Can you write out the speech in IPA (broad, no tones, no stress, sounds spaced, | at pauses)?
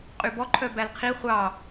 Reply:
qʼ y b ɔ ǃʰ œ b æ l qʰ i χʷ ɑ